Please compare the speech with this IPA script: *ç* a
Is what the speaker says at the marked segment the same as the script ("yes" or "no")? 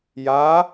no